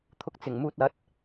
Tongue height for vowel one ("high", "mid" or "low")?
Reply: high